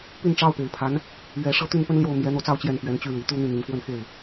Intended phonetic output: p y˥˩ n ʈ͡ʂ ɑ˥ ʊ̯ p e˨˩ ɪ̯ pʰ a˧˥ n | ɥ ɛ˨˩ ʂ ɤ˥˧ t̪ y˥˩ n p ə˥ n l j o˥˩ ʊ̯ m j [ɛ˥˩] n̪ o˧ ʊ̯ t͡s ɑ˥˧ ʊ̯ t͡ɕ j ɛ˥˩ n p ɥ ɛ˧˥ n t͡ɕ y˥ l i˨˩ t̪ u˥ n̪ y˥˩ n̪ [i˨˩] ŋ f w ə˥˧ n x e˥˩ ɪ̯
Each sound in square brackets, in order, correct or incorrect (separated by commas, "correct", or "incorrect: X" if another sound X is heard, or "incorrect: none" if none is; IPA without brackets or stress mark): incorrect: ɛ˧˥, correct